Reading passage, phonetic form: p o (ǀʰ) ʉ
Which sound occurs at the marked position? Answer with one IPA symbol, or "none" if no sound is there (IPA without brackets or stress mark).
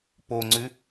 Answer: ŋ͡ǀ